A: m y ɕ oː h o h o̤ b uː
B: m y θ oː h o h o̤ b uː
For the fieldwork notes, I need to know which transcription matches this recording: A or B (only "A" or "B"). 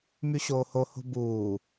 A